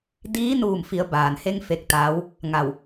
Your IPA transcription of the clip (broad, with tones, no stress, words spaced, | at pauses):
diː˧˥ nuː˧˩mfi˩˧ə̯ baː˩nhe˧ŋ fe˧k̚t̪aː˧˥w | ŋa˧˩w